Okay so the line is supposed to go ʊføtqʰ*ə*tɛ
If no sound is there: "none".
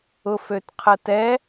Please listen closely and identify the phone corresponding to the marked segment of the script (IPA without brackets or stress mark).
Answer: ə